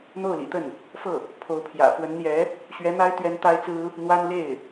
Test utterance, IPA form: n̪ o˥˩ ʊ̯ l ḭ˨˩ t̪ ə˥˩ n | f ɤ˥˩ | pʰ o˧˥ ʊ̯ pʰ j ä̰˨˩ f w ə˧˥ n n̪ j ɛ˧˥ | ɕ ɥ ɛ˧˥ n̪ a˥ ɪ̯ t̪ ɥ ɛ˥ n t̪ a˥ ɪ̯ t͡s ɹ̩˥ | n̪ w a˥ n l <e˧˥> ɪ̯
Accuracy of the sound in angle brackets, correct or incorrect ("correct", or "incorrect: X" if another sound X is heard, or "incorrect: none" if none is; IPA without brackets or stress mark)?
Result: incorrect: e˥˩